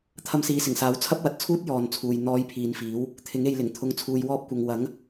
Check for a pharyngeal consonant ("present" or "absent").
absent